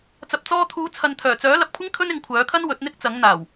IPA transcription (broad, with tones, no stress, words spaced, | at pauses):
t͡sɐ˨p̚t͡sɔː˧t̪ʰuː˨˧ t͡sʰɐ˨nt̪ʰœː˨˩t͡sœː˨˥ lɐ˨˥p̚kʷʰɪ˥ŋ kʰɵ˥nɪ˨˥ŋkʷʰœː˨˥kʰɐ˥n wɵ˨˥t̚n̪ɪ˥k̚t͡sɐ˨˥ŋ n̪aː˨˩w